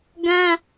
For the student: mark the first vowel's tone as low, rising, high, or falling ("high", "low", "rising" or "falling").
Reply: high